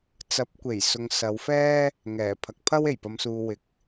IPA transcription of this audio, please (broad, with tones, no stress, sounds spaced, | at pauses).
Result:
t͡s ɐ˨˥ p̚ kʷ e˨˩ j s ʊ˨ ŋ s ɐ˨˧ w f ɛː˥ | ŋ ɛː˨˩ pʰ ɐ˨ k̚ pʰ ɐ˥ w e˨˩ j p ɐ˨˧ m s uː˨ w ɪ˨˥ k̚